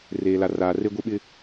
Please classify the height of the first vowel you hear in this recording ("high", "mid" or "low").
mid